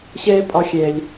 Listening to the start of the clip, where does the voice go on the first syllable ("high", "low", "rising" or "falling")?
high